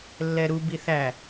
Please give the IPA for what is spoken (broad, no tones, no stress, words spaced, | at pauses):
lːɛɾu biθæ